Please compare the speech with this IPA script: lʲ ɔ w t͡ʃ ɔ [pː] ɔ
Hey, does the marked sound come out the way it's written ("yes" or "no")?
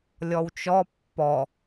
yes